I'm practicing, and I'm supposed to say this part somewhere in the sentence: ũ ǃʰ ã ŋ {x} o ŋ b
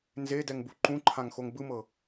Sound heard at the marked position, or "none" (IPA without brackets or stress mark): x